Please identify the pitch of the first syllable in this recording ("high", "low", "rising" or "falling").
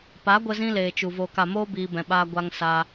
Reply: rising